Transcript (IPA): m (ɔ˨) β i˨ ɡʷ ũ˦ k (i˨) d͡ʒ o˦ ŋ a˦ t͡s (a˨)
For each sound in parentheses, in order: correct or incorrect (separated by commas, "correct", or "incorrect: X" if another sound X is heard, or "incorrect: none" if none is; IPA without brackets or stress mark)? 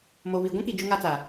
incorrect: o˨, correct, correct